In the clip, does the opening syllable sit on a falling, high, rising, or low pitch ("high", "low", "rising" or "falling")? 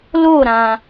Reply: falling